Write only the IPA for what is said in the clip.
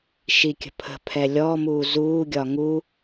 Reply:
ʃ i kʲ ə̤ pʰ ə̤ pʰ ɛ lʲ ɔ m uː z uː ɡʲ ɒ ŋ u

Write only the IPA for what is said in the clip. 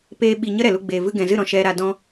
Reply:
p eː˦ ɓ i˧ ɲ ə˦ ɾ ɛ˨ l u˧ ɡ͡b eː˨ v ɨ˧ ɡ ɛ̃˨ z ɨ˦˨ ɾ ɔ̃˦ ʃ ɛ˧ ɾ a˧ d ɔ̃˦

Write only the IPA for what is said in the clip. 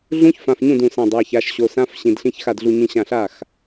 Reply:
ɮ ũ˦˥ ç f ã˩˧˩ f ɲ ũ˥˩ d ũ˧˩ s æ̃˧˩ dˤ a˩˧˩ ç a˩˧˩ ʃ ɕ o˩˧˩ s ã˦˥ f ɕ ĩ˩˧˩ d ɬ ĩ˧˥˧ ç x a˥˩ d ɮ u˧˩ ɲ ĩ˧˩ ɕ ã˧˩ ɬ a˥˩ x

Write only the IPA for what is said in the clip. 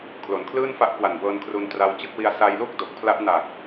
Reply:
kʰ l o˩˦ n kʰ l ɯː˥˩ n f a˦˥ ʔ k w a˨˩ n b ɤː˧ n kʰ r u˧ n t r a˧ w t͡ɕ ɯ˥˩ k̚ w i˧ a̯ s a˧ j l u˥˩ k̚ d o˨˩ k̚ pʰ l a˦˥ ʔ n a˨˩ k̚

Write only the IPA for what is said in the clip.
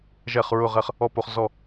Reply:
ʒ ɛ˥˧ χ ɹ ʊ˥˧ ʁ ɛ˥˧ χ | ɔ˥˧ p o˨˦ χ z ɔ˥˧

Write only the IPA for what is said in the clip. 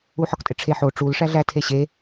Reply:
u ħ ɒ k tʼ e ʈ͡ʂʰ e ħ o ʈ͡ʂ u l ʂ æ ɮ æ tʰ e ɕ e

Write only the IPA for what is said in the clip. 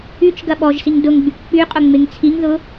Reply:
y t͡ʃ ɡ ɐ ɓ ɔ ʒ s i ŋ d ʊ ŋ ɡ͡b y k k͡p y qʼ ʊ ŋ͡m ɪ ŋ t͡sʰ i ŋ ð ʊ

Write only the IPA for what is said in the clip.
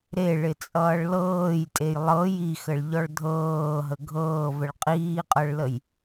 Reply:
ɾ e ɭ ɪ t͡sʼ ʌː ɭ l ɤː j tʼ e j lˠ ɤ j i x ə ɭ ʎ ɔ ɭ dʱ ɤː ɦ ə ɡʱ ɤː v ə ɭ qʼ iː qʼ ɤ ɭ l ə j

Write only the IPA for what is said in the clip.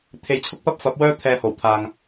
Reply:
t̪ʰ e˨˧ j t͡sʰ ʊ˥ k̚ p ɐ˥ p̚ f ɐ˨˥ p̚ w œː˥ t̪ʰ ɛː˧ h o˨˩ w t̪ʰ aː˨ ŋ

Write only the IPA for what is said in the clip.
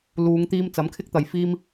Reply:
l uː˨˧ ŋ t̪ iː˧ m t͡s ɐ˨˥ m kʰ ɪ˥ k̚ t̪ ɐ˨ j f iː˥ m

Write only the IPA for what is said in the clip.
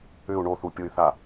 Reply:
ʏ u̯ ɳ o θ u pʲ o y̯ θ a

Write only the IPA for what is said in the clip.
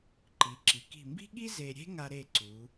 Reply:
ǃ i˩˧ ǁ i˩˧ k i̤˧˩ m b i̤˥ ɠ i˥ z e˧ ɾʲ e̤˥ ŋ a˧ ɾ e˧˩ ǀ u˩˧

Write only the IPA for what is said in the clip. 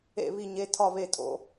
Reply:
ḛ˧˩ β i˧˩ ɲ e˩˧˩ tʰ ɒ˧˩ β e˧˩ tʼ o̰˩˧˩

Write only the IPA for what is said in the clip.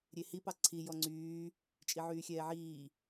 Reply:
ɾʲ e h i p ɑ ǀʰ i j ɔ ŋ͡ǀ yː | t͡ʃʼ i ʕ yː xʲ ɛː ʕ iː

